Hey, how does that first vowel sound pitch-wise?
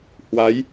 rising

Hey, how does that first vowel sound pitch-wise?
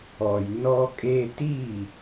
low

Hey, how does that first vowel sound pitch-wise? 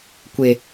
low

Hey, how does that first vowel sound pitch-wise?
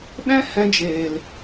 high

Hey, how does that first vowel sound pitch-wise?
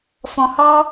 low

